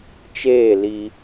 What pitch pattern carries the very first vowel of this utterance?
falling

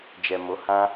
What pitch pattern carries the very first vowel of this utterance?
low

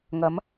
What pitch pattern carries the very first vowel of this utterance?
rising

